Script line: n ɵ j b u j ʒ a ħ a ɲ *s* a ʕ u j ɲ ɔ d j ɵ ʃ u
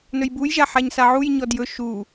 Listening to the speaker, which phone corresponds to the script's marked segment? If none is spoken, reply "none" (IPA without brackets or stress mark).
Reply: s